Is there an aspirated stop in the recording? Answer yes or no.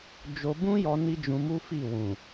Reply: no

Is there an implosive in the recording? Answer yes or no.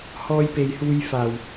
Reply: no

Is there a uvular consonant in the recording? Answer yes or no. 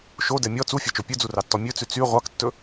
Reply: yes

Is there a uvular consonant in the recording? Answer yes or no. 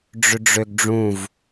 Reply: no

